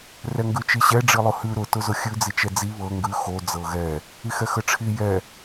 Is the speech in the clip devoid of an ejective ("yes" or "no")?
yes